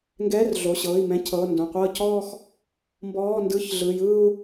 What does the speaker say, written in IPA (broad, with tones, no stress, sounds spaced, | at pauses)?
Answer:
ŋ ɡ ɛː˧˥˧ r ɮ o˩˧˩ ɕ ɤː˩˧˩ i̯ m ɛ̃˧˥˧ cʰ ɤː˩˧˩ n d õ˩˧˩ qʷ ɤː˥˧ c ɔː˥˧ x | m b ɔː˧˥˧ n d ɯ˧˥˧ ç ɮ ɯ˩˧˩ j ɯː˥˧ u̯